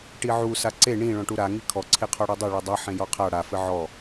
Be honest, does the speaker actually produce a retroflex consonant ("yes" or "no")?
yes